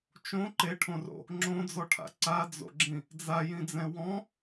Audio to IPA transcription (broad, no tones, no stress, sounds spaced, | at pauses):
t͡ʃ õ ǃ e ʈʰ õ r o̰ | ŋ͡ǁ õ d͡z ɔ ʈʰ a̰ ǀ a d͡z o̰ ɡ͡ǁ ĩ | d͡z a j ĩ d͡z ɛ̃ w ɔ̃